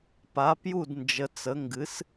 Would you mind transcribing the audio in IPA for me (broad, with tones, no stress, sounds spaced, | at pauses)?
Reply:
p a˩˥ p j u˥˩ d n d͡ʒ ə˩˥ t͡s ə˩˥ ŋ ɡ ɨ˩˥ s